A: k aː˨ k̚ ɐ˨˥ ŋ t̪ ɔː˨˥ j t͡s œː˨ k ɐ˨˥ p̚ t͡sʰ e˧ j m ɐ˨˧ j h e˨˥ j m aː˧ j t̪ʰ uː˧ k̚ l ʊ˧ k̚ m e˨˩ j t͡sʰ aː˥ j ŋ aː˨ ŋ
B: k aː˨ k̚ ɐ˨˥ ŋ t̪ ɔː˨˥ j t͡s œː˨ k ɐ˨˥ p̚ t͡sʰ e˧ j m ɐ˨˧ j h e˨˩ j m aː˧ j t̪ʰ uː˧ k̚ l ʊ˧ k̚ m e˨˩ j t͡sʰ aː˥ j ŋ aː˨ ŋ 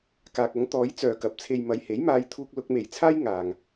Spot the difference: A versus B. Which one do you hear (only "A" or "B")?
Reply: A